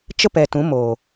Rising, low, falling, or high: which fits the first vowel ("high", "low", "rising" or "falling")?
high